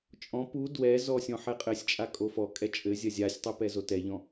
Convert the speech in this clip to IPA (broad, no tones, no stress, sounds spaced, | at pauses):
t͡ʃʼ ɔ̃ p u d w ɛ z ɔ sʲ ɔ̃ ħ ɛ qʼ ɘ sʲ t͡ʃʼ a kʼ o f ɔ kʼ ɛ t͡ʃʼ ɘ zʲ ɐ zʲ a sʲ tˤ ɨ p ɛ z o t ɛ ʎ ɔ̃